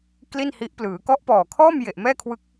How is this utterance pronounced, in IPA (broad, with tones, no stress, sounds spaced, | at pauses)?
k l i˥˩ n h i˦˥ ʔ p l ɯː˩˦ k ɔ˦˥ ʔ p ɔː˨˩ kʰ ɔː˥˩ m j e˨˩ ʔ m ɛː˥˩ kʰ w ɯ˦˥ k̚